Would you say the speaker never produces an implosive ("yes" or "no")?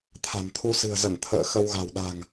no